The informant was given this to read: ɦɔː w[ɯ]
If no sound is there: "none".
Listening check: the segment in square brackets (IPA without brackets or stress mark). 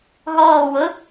ʊ